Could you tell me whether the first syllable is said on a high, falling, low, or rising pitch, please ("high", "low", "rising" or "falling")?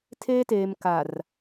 high